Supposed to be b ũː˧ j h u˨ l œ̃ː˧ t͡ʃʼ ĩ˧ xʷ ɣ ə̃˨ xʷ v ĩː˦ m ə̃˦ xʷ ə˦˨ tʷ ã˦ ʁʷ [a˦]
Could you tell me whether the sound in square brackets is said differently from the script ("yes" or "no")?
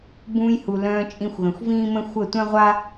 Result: no